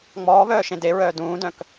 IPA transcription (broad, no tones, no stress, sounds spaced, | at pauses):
ŋ͡m ɔː β œː ʃ ẽ d e ɹ œː d ũː d œ̃ k